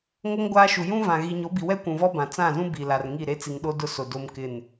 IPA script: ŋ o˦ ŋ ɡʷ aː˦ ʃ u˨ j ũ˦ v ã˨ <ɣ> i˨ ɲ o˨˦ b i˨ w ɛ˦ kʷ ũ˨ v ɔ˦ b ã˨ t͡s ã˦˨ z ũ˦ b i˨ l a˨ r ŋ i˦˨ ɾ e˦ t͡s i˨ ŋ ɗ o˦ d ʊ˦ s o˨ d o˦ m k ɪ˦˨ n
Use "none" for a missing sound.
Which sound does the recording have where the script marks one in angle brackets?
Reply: ɣ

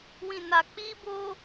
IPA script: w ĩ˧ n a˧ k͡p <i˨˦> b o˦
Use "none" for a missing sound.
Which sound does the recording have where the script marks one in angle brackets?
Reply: i˦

